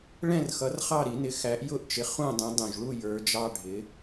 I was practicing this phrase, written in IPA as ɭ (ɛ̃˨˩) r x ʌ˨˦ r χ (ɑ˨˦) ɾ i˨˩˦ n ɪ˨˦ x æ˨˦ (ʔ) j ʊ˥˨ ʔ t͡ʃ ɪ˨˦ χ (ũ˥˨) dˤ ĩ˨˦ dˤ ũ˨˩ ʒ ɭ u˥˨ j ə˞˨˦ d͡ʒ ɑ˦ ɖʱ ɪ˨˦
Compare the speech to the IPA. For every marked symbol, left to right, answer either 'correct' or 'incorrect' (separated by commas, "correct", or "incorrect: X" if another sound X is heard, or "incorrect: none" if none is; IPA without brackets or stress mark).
incorrect: ɛ̃˥˨, incorrect: ɑ˥˨, correct, correct